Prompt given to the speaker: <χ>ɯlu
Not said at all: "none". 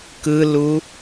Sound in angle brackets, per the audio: k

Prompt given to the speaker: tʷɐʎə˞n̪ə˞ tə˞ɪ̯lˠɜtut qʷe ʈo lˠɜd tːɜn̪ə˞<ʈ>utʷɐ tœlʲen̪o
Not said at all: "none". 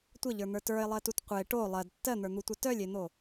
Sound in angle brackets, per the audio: n̪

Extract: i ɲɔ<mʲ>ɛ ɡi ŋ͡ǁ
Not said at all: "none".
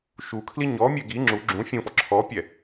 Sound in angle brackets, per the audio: mʲ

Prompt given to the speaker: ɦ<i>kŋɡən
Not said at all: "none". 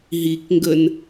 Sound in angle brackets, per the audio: i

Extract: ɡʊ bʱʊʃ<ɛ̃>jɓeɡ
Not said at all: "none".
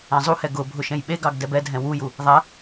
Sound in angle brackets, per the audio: ɛ̃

